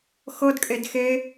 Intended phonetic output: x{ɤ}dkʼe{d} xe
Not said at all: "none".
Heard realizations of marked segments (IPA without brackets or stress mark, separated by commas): ɤ, d